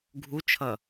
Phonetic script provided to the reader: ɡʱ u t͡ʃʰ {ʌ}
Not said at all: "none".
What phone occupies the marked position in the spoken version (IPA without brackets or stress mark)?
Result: ʌ